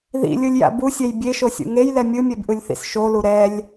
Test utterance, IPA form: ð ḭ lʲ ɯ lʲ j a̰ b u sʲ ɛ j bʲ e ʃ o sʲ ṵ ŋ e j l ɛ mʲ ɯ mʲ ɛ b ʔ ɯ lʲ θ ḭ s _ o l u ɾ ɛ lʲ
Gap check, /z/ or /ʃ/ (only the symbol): ʃ